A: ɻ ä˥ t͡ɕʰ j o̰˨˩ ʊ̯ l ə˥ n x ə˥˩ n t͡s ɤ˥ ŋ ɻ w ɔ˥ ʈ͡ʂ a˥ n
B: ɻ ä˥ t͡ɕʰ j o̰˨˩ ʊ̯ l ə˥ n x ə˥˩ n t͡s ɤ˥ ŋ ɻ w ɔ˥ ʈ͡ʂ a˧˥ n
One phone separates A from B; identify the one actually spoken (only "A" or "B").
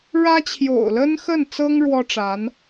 B